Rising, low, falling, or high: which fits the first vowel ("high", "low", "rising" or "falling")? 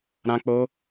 high